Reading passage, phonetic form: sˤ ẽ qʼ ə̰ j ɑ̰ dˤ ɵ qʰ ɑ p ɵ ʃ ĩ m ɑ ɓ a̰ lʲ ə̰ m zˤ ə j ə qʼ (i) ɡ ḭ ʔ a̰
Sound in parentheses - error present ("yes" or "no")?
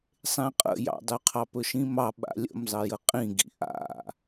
yes